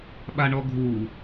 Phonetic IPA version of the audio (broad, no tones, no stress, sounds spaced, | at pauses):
ɓ a ɳ ɔ ɡʱ u